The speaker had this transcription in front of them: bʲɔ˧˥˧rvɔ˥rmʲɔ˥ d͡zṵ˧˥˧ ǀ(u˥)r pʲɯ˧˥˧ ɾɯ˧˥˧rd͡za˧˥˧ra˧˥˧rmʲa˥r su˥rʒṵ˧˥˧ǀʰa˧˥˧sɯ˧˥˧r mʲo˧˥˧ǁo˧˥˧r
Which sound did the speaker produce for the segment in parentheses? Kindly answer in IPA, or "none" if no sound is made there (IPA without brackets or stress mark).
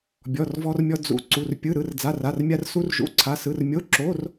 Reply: u˧˥˧